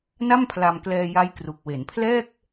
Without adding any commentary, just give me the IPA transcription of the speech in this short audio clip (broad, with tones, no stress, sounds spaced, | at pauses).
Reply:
n a˥˩ m pʰ l a˧ m k l ɛː˧ j a˦˥ j k r u˨˩ k̚ w e˩˦ n pʰ l ɛː˥˩ k̚